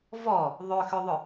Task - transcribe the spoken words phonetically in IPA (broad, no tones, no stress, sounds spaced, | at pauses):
v ɔ | ðˤ ʏ x ʏ ðˤ ʏ